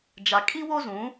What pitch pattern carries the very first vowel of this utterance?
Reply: low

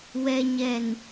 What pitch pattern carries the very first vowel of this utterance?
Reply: low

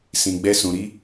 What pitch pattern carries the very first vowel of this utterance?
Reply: high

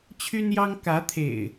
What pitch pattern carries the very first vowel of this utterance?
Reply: high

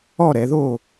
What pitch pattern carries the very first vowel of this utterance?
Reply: falling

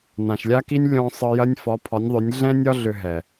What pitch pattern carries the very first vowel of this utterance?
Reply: low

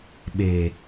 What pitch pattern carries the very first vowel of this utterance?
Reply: low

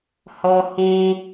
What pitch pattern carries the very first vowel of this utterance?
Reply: low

